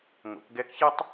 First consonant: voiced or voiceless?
voiced